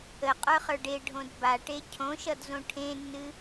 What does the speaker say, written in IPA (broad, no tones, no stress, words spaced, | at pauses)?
əqʼə˞χə˞ɖ eɖʱõd baʈe cʰõʃʌdzõ ʈʰẽnːɨ